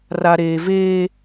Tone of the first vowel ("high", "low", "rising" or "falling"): high